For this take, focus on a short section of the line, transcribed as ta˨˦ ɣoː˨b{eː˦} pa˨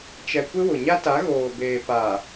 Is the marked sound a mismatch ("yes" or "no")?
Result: yes